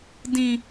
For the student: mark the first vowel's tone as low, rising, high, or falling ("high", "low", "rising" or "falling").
high